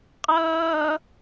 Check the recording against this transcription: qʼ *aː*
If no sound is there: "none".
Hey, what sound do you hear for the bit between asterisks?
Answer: ʌː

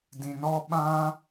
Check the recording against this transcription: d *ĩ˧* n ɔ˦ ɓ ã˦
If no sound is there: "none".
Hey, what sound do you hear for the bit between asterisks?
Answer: ĩ˧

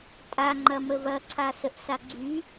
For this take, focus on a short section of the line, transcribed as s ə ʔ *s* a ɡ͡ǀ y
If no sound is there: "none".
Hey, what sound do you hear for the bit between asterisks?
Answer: s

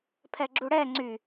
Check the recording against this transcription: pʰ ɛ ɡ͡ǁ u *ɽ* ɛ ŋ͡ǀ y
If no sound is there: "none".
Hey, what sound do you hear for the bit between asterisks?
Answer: ɽ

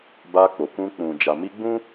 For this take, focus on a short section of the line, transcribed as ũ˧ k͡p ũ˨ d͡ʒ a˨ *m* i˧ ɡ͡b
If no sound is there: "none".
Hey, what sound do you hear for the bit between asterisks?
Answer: m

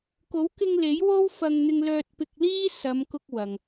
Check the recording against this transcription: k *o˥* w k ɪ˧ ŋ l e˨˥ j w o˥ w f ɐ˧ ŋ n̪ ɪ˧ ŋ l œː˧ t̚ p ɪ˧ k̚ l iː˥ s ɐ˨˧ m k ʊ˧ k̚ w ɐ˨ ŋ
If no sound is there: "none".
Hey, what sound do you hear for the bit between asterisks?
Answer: o˨˥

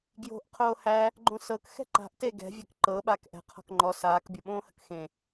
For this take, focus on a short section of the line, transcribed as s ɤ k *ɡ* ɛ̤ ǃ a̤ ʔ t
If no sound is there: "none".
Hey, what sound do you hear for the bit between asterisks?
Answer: x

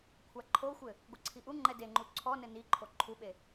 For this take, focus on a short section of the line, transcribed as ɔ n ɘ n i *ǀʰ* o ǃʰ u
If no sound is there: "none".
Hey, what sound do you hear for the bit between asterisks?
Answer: ǃʰ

